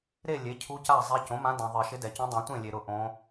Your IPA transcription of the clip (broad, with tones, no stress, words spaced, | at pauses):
ɾe˥˨ lʲe˩˥ cʰu˧˥ ca˥˨zˤɛ˧˥ cõ˩˥mã˧˥ dã˨ðˤɪ˨˩˦ ʃɪ˧˥dɛ˨cũ˧˥ dˤũ˨˩˦tʷẽ˥˨lʲe˨ ɾʊ˥˨ʔõ˧˥